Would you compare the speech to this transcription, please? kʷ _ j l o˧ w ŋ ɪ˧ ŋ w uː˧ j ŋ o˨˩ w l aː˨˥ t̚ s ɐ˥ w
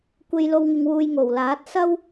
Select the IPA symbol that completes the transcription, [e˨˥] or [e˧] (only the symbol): e˧